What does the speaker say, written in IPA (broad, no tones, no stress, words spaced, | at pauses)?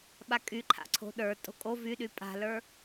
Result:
ɓakʼyǃʰa̰ǀʰo̤ ɗə˞ tʼo̤kʼo vyɗy pʼa̤lə˞